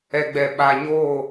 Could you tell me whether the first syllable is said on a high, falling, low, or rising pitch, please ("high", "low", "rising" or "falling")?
low